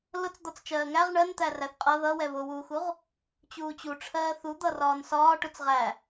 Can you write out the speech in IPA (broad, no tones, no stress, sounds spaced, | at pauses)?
l ʊ t͡s d̪ ɒ t͡s t͡ʃ ɜː ŋ æ ʁ ɳ ɜ n t̪ æ r æ θ qʼ ʌ ð ʌ w ɛ β ʊ w uː x u ʁ | t͡ɕ uː t͡ɕ u ʈ͡ʂʰ ɜː θ u d̪ ʌ r ɒː n s ɒː ʈ ʊ t͡s ʁ æ